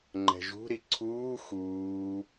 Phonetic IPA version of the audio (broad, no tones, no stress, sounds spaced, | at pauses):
ŋ͡ǃ ɛ̤ ʒ ṳ ɾ i ǀʰ uː x uː